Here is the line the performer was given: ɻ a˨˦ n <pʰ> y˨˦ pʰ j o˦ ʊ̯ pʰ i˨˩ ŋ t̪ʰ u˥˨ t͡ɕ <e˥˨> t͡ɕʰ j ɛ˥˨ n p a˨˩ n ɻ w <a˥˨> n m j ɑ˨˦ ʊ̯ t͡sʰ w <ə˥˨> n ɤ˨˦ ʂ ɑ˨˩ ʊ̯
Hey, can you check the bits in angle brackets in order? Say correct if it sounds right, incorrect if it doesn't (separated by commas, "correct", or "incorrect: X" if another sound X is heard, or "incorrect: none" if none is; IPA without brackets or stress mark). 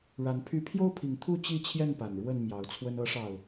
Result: correct, incorrect: i˥˨, incorrect: ə˥˨, incorrect: ə˦